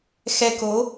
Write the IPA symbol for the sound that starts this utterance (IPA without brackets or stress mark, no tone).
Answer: x